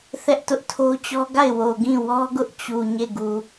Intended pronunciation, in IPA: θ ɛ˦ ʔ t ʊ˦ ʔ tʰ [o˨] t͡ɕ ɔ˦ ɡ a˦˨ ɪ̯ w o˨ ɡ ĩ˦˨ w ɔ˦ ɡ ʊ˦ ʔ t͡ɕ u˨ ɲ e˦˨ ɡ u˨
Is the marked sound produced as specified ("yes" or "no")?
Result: no